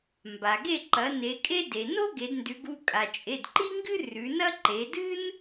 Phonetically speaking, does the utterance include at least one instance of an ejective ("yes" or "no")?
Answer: yes